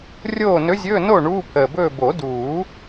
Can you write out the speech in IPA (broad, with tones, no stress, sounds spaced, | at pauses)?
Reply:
rʲ oː˥˨ n ɵ˧˥ zʲ ɵː˧˥˧ n o˥˨ ɳ uː˧˥˧ pʰ əː˨˩ b ɵː˥˨ b o˨˩˦ d uː˨˩˦